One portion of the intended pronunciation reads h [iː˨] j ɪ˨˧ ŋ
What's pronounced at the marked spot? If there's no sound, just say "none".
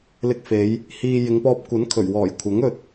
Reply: iː˨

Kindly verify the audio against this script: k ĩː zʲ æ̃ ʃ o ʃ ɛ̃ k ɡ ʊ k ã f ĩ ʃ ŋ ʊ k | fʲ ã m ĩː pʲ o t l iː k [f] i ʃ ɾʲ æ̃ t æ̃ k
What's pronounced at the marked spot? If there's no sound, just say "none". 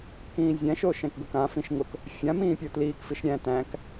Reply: f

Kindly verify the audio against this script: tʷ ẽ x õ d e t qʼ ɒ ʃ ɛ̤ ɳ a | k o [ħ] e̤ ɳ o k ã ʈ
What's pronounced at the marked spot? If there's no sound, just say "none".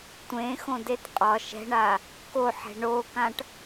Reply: ħ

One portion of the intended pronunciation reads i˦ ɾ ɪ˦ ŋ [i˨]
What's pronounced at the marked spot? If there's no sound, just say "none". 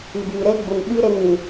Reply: ĩ˨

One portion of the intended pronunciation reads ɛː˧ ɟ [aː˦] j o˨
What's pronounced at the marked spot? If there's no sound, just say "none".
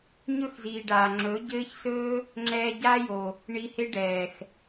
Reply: aː˦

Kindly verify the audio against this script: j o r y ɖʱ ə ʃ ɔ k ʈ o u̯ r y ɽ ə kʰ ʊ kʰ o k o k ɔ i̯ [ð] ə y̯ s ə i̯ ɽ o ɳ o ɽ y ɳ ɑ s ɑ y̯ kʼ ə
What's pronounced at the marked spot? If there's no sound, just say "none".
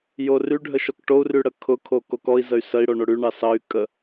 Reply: z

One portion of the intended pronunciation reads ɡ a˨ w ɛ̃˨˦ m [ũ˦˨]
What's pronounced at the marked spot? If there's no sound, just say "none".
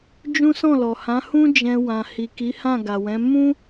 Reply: ũ˦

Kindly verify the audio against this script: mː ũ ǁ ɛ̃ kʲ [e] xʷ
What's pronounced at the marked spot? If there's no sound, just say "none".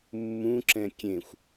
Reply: ẽ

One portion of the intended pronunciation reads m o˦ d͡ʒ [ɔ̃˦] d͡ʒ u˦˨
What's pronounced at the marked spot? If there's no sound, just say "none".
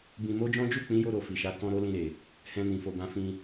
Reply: ɔ̃˦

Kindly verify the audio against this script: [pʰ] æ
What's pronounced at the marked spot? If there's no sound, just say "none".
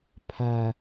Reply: pʰ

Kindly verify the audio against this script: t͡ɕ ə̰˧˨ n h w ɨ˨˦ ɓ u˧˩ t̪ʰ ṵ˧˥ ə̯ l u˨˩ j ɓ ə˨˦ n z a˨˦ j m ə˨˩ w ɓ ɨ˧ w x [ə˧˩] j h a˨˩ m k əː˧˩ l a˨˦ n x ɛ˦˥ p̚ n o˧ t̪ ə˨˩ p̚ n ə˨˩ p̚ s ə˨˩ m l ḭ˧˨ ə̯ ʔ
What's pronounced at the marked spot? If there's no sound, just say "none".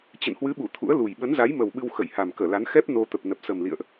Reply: ə˧˩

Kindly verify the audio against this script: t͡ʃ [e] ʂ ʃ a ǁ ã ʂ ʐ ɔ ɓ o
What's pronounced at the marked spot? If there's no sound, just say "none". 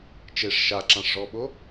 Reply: e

